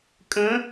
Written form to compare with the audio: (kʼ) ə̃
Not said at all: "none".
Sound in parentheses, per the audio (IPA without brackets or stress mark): kʼ